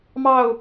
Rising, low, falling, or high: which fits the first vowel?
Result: falling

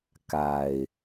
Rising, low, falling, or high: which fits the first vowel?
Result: low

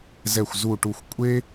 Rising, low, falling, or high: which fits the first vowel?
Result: falling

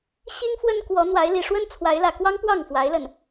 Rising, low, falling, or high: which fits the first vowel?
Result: high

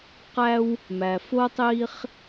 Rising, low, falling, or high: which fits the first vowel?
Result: high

